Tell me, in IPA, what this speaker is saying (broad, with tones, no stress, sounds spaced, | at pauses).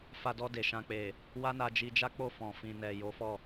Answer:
f a˧ d ɔ˧ d e˨ ʃ ã˨ k͡p e˨ | w a˦ n a˧ d͡ʒ i˧ d͡ʒ a˦ k͡p o˦˨ f ɔ̃˨ f ĩ˨ n ɛ˨ j o˨˦ f ɔ˦˨